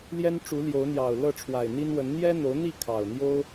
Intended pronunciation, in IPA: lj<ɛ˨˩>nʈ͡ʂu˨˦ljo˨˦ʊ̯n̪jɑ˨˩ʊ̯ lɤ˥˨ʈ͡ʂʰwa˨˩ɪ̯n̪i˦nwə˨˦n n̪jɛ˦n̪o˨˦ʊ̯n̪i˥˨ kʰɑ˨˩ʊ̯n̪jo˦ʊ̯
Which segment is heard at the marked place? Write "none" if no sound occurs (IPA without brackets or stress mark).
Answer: ɛ˦